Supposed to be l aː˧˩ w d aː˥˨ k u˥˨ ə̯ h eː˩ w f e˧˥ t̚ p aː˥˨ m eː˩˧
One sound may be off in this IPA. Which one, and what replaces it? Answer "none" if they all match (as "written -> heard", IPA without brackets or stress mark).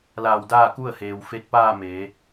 none